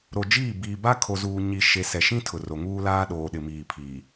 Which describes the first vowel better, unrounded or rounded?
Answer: rounded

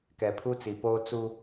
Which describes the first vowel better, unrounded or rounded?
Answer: unrounded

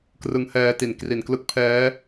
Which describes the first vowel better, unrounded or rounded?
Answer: unrounded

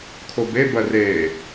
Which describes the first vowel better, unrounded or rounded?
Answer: rounded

